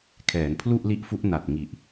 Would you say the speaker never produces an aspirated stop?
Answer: no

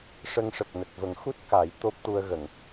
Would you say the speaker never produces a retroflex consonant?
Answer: no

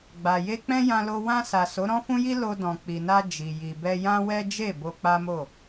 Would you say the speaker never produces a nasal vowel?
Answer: no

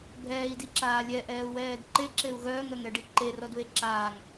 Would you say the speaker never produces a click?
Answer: no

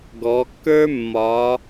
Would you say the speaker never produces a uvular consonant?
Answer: yes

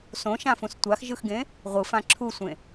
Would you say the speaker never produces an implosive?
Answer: yes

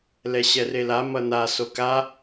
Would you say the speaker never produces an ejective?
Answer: yes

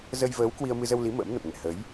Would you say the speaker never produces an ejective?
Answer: yes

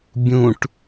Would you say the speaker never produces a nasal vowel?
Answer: no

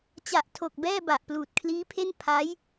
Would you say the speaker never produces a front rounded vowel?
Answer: yes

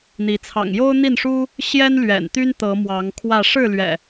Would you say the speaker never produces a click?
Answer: yes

